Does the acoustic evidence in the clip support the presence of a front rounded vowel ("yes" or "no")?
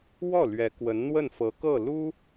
no